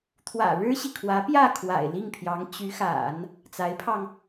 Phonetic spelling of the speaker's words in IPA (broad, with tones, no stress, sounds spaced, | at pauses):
t̪ʰ w ä̰˨˩ ɻ ɻ̩˥ ɕ i˨ kʰ w ä˧˥ p j ä˥˩ kʰ w a̰˨˩ ɪ̯ l i˥˩ ŋ pʰ j ɑ˧˥ ŋ t͡ɕ y˧˥ x a̰˨˩˦ n | t͡s a˧˥ ɪ̯ pʰ ɑ˧ ŋ